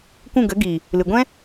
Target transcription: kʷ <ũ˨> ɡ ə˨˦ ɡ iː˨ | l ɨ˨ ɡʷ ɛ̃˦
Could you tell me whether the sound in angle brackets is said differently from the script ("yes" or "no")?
yes